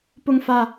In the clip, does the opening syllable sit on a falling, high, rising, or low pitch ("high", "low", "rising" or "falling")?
falling